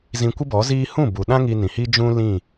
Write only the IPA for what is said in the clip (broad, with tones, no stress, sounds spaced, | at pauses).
z ĩ˧ kʷ ɨ˦ b ɔ˨˦ z iː˦ h ũ˦˨ b u˨ ɗ ã˦ ŋ i˧ n ĩ˨ h i˦ d͡ʒ ũ˦ l ĩ˦˨